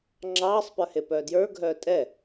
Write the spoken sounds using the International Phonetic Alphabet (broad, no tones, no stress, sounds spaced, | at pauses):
ŋ͡ǁ ɑː sˤ p ə˞ h e p œː d j ə˞ ɡʱ œː tʼ ɛ